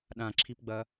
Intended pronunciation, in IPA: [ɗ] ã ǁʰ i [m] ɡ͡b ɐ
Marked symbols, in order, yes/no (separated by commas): yes, no